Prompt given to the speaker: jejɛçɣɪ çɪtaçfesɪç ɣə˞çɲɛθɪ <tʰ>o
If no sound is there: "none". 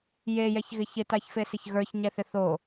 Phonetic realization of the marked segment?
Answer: θ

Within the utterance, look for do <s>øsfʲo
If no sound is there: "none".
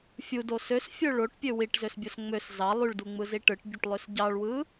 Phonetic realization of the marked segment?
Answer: s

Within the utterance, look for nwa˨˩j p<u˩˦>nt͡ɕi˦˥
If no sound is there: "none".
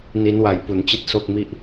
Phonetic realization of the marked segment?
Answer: u˩˦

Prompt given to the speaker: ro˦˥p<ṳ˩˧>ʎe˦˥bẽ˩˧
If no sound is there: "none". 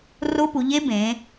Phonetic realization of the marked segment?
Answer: u˩˧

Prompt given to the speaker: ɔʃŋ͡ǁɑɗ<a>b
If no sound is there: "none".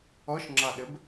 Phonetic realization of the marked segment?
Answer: ə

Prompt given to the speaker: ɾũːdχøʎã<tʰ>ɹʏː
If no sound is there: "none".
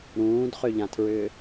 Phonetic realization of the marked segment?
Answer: tʰ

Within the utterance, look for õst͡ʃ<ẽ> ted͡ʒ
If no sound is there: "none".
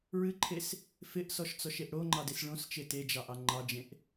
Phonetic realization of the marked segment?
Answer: e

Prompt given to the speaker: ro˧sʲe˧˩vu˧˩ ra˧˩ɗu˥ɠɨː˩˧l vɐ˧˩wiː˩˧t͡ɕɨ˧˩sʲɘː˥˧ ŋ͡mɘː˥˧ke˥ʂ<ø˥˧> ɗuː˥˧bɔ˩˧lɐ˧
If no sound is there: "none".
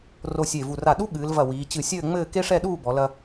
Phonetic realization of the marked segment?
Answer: ɛ˥˧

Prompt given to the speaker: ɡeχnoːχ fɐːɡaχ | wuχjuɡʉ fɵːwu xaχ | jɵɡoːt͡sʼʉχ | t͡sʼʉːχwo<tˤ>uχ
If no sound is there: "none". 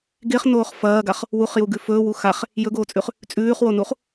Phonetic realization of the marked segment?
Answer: n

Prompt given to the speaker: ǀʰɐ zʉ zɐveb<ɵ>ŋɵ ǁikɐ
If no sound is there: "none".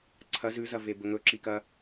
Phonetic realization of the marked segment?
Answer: ɵ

